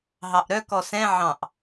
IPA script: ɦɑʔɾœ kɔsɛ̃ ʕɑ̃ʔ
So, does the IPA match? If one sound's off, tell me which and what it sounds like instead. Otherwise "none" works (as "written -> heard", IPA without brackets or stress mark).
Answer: none